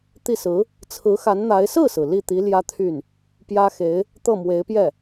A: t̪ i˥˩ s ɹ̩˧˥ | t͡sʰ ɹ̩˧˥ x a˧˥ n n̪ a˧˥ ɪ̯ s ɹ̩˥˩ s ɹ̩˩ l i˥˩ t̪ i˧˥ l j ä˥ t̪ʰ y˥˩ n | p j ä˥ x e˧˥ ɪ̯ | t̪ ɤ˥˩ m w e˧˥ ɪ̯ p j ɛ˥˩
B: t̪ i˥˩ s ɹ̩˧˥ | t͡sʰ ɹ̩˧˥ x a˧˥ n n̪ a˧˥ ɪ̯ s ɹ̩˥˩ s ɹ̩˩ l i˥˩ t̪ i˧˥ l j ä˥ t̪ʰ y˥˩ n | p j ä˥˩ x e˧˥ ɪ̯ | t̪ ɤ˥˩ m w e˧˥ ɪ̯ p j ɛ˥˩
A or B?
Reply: A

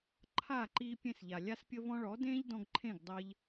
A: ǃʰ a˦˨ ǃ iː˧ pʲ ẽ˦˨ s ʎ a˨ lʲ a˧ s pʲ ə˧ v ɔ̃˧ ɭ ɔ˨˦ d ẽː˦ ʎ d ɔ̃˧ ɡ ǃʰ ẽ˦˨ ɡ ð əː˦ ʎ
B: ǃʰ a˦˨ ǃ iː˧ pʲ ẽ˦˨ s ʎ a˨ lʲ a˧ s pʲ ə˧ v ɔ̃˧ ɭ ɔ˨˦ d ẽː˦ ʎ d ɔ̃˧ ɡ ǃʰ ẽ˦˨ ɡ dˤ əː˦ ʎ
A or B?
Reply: B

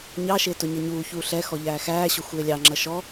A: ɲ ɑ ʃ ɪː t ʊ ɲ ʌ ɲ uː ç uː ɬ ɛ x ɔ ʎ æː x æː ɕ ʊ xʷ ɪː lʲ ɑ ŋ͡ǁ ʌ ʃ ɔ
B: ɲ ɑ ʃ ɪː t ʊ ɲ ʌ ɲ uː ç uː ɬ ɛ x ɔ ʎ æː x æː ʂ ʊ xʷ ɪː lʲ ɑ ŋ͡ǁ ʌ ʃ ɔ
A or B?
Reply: A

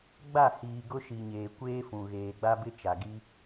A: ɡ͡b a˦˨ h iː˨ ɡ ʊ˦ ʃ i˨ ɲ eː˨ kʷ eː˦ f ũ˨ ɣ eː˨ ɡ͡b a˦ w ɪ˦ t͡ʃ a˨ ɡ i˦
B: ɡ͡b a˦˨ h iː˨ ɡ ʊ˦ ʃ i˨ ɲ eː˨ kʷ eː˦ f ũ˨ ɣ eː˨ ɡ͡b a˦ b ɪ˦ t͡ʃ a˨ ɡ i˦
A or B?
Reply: B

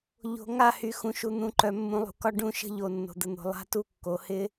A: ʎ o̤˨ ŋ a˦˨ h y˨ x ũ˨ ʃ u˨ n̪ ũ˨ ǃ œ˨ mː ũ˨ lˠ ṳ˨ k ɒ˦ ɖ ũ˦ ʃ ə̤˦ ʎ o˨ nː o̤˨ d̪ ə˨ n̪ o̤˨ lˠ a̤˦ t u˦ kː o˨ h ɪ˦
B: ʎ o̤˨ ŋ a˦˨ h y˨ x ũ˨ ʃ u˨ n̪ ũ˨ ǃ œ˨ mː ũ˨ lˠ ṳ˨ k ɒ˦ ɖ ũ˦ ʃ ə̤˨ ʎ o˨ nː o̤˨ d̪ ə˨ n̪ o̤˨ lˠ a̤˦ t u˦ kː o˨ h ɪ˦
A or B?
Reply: A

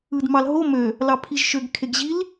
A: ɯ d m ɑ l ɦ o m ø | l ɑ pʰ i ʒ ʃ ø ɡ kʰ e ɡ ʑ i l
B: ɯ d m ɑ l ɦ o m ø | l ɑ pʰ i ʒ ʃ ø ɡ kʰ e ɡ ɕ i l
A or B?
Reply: A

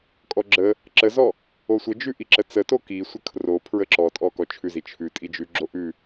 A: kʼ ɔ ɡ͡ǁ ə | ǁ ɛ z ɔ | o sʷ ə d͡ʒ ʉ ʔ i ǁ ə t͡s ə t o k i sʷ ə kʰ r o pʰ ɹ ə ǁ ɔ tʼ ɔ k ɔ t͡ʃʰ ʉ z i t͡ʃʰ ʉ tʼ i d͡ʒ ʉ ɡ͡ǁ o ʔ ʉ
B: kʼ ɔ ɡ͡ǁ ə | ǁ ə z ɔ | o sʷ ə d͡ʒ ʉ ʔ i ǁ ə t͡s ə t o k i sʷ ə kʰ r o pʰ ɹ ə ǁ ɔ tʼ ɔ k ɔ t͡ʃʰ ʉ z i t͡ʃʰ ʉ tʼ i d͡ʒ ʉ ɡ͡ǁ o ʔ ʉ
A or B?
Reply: B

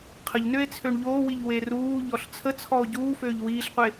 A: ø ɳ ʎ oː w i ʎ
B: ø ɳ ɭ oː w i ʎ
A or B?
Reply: A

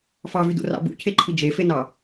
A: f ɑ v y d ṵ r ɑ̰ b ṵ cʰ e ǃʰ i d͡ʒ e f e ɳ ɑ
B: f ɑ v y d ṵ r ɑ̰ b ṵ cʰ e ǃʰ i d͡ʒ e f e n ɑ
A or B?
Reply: B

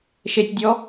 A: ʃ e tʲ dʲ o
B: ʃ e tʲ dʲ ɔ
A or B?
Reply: B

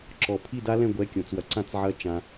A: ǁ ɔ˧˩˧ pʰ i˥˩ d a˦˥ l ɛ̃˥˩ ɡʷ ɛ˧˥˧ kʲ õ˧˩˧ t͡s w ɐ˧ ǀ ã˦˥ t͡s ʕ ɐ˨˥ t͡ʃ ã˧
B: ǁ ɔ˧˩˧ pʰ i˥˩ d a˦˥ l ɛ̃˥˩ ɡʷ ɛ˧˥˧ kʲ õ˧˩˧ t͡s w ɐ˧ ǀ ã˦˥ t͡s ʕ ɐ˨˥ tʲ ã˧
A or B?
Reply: A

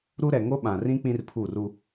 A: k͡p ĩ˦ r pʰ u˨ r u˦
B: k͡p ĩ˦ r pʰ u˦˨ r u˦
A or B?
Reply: B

